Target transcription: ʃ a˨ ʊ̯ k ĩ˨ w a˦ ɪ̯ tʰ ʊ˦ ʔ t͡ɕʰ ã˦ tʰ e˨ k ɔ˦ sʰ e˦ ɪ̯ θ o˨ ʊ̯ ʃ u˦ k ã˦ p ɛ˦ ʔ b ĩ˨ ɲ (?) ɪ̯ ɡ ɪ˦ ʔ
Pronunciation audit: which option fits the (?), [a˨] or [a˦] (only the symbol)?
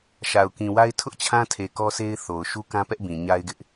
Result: a˦